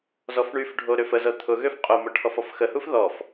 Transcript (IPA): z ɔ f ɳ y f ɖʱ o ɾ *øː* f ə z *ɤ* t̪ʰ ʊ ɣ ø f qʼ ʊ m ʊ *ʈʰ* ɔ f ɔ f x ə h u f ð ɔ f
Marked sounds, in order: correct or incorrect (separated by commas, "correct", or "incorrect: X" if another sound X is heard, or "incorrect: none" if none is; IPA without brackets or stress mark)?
incorrect: ø, correct, correct